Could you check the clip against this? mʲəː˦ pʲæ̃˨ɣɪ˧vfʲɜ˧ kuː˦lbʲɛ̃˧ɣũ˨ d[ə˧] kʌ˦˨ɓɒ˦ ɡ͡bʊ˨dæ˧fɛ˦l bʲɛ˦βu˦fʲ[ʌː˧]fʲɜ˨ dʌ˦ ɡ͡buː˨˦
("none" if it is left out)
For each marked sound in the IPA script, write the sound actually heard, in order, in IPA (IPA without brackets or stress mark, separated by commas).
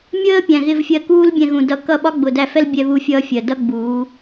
ʌ˧, ʌː˦